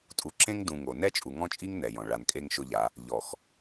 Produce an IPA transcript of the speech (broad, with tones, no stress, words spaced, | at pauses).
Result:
tʼu˨ǁẽ˦ŋdũ˨ ŋo˨ nɛ˦t͡ʃʼu˨ŋɔ̃˦t͡ʃʼi˦ŋ nɛ˨jɔ̃˨ ɭa˨nkʼe˦ŋ ʃʊ˦ʎa˨˦ | ʎɔ˨x